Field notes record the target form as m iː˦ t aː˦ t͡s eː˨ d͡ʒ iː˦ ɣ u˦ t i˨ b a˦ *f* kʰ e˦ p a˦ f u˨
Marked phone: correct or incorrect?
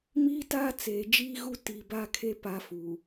incorrect